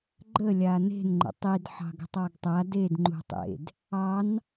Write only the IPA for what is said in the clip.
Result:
ɡ͡ǃ ə lʲ a n e̤ n ŋ͡ǃ ə̰ tˤ i d ħ ɑ̤ ɡ ə̤ tˤ ɑ ɡ tˤ a d e d ŋ͡ǃ ṳ tˤ ḛ d | ɑ n

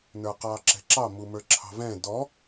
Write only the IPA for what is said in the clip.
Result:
n ə˞ q ɑ ǁ ɛ̤ ǁ ɑ m u m ə˞ ǁʰ ɑ̤ v ɛ̃ d ɔ

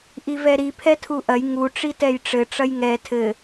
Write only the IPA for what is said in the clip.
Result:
ʔ i v ɛ ɾ i pʰ ɛ tʰ u ʔ ɐ j ŋ u ʈ͡ʂ i t ɛ j ʈ͡ʂ ɘ ʈ͡ʂ ɐ j ŋ ɛ tʰ ɘ

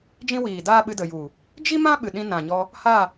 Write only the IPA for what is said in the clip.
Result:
d͡ʒ ĩ˦ w iː˨ d aː˦ ɓ ɨ˧ d ə˨ j u˨ | d͡ʒ i˦ m ã˦ ɓ ɨ˨ ɗ ĩ˧ n ã˨ ɲ ɔ˧ | h a˦˨

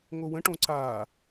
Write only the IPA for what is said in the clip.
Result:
ŋ o w ə̃ ʈ õ ǀ aː

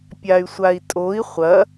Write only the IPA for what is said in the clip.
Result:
pʲ a y̯ sʷ a i̯ tʼ o i̯ χʷ ɐ

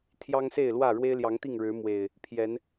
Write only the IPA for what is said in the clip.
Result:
t̪ʰ j ɑ˦ ŋ s e˥˨ ɪ̯ l w ä˥˨ ɻ w e˦ ɪ̯ l j ɑ˨˦ ŋ t̪ i˥˨ ŋ ɻ ɻ̩˨˦ m w e˨˩ ɪ̯ | pʰ j ɛ˨˦ n

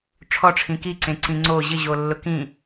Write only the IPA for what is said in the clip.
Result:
ʈ͡ʂʰ ɔ ʈ͡ʂʰ ĩ k i ǀ ẽ ǀ ĩ ŋ͡ǀ o ʑ ɪ ʑ o lː ʊ k ĩ

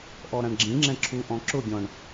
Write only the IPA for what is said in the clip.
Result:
ʔ ɔ ɾ ã ɳ ɡ͡ǁ ĩ ŋ͡ǁ ɛ̃ ǁʰ u ʔ ɔ̃ ǁ ʊ ɡʲ ɔ̃ ɳ

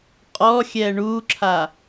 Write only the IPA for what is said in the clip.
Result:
qʼ ɔ xʲ ɛ ɳ u ǁʰ a

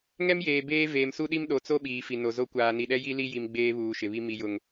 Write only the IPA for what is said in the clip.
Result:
ŋ ɛ˦ m j eː˨ b eː˦ v eː˨ m s u˦ ɗ i˦ m ɗ o˨ t͡s o˦ ɓ iː˨ f i˨ n o˨ z o˦ kʷ aː˨ n i˨ ɗ ɛ˦ j i˦ l i˦ j i˨ m ɡ͡b eː˦ β uː˨ ʃ ɪ˨ β i˦ m i˨ j ʊ˨ ŋ

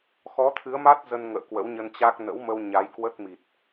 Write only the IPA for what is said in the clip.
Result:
x ɔ˨˦ t̪ʰ ɨ˨˦ ə̯ m a˦˥ t̚ z ə˧ n ŋ ə̰ː˧˨ k w ə̰˧˥ w ɲ ə˧ n t͡ɕ a˦˥ k̚ n ə̰˧˥ w m ə˧ w ɲ a˨˦ j k w ə˦˥ t̚ m i˨˩ t̚

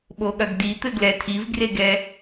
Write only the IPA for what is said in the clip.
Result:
ɓ o ɠ ɐ ɡ d i t̪ ɘ ɡ l ɛ tʰ i v ɡ r e ɡ ɛ

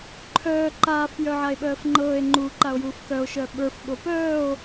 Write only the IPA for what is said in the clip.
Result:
ǃʰ œː ǃ aː f j œ ʕ a e̯ ɓ œː f ŋ͡ǃ ɤː e̯ ŋ͡ǃ u ǃ a o̯ j uː f k œ o̯ ʃ œ ɓ ə˞ f ɓ o p œː o̯

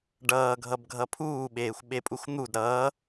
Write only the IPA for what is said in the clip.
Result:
ɖ ʌː ɡʱ ʌ b ɡʱ ʌ pʰ uː ɓ eː xʷ ɓ e pʼ u x n̪ u d ɾ ʌː

